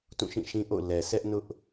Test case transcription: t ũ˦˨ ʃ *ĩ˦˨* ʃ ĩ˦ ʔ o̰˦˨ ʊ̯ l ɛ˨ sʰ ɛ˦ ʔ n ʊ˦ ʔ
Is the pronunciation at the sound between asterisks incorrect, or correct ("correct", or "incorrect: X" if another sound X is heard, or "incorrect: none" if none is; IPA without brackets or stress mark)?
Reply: correct